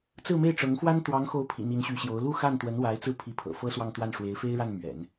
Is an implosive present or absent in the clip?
absent